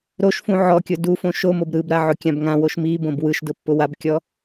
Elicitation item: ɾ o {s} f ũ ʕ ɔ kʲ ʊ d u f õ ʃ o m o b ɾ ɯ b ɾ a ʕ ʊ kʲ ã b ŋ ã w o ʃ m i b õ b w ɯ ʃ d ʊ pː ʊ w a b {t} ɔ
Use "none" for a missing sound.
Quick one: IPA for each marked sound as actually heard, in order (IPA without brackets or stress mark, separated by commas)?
ʃ, kʲ